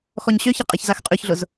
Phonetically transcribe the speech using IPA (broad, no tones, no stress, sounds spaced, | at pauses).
x ɔ ɲ ɕ ø ç ɐ qʼ e ç z a x qʼ y ç ɮ ʊ z